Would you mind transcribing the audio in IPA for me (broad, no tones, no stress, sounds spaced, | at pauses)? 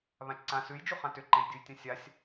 β ã t͡ʃ ǀ ã s ʉ j d͡ʒ u χ ã t ʏ ǃ ẽ j dʲ u j tʲ ã sʲ a sʲ